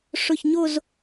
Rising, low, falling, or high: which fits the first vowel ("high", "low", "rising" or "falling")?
falling